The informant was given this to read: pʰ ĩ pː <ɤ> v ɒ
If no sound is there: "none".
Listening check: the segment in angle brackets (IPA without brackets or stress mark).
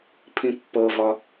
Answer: ɤ